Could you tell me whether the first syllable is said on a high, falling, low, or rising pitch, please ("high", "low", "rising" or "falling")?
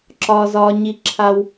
high